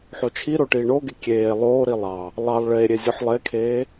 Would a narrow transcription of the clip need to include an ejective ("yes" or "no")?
no